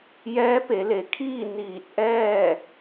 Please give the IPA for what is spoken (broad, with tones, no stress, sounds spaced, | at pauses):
j ɛː˧˥ p e˩˧ l e˩˧ kʰ iː˥˨ n iː˧˩ t̚ ʔ ɛː˥˨